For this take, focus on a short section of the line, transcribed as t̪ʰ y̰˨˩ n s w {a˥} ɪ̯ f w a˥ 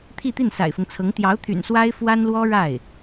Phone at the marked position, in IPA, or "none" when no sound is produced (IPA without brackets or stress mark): a˥